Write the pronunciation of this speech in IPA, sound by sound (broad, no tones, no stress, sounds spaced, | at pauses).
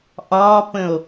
ʔ ɒː p ə̃ o̯